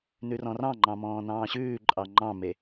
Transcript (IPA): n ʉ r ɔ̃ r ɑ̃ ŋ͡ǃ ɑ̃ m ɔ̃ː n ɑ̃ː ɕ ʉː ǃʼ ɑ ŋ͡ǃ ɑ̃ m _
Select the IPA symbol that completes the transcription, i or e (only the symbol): e